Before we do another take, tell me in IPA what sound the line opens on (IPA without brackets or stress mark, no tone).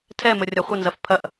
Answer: tʰ